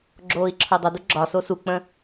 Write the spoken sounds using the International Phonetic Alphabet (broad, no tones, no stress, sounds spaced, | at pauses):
ɡ͡ǁ oː i̯ ǁʰ o dˤ ə d u ɡ͡ǁ ɒ s o s u k͡p ə̃